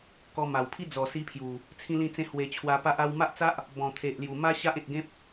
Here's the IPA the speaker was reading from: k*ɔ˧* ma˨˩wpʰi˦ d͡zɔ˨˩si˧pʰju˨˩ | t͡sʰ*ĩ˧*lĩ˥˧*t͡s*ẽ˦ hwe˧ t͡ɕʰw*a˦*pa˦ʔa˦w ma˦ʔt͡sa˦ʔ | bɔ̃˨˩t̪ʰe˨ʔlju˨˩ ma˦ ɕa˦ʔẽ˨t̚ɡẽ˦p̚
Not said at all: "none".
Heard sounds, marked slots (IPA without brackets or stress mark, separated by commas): ɔ˧, ĩ˦, t͡s, a˧